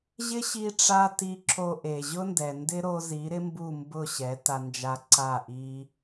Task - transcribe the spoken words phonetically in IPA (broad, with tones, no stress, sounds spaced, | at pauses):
ʑ ɪ˦ ɕ i˧ ʈ͡ʂ a˧ t i˧ ǁ o˧ ʔ e˨ ʑ ʊ˦ n d ɛ˨ n d ɪ˦ ɾ o˧ z i˨˦ ɾ ɪ˦ m b u˦˨ m b ʊ˦˨ ɕ ɛ˨˦ t a˧ n d͡ʒ a˧ ǀ a˦˨ ʔ i˦